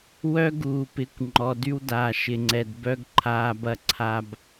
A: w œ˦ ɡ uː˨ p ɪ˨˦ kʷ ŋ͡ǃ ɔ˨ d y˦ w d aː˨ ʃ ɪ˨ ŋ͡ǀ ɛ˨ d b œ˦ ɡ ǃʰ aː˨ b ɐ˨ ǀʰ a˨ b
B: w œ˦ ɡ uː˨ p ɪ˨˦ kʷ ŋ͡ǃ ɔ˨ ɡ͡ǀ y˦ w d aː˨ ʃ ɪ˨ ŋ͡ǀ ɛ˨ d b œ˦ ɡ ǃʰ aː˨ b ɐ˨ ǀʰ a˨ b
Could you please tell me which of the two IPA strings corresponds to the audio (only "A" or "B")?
A